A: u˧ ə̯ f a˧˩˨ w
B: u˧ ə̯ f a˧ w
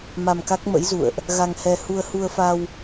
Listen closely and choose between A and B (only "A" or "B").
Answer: B